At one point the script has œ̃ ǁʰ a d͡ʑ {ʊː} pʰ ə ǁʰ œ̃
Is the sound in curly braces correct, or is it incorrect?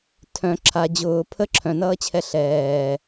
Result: correct